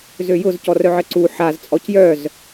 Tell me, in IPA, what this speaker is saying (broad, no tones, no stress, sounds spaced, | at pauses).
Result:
z ø j ʊ z c ɔ r œ ʕ ə ǀ u ħ a z t͡sʼ ɔ c j œ z